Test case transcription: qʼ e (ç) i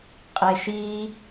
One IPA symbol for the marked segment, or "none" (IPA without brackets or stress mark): ʃ